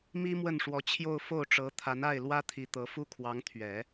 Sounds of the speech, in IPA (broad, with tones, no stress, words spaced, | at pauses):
mi˥ mwə˥˩nʂwɔ˧˥t͡ɕʰjo˥˧ʊ̯ fo˥˩ʊ̯ʈ͡ʂɤ˧˥t̪ʰa˧˥n a˥˩ɪ̯ lwä˥t̪ʰi˧˥ t̪ɤ˧˥ fu˥kʰwɑ˧˥ŋt̪ʰɥɛ˨˩˦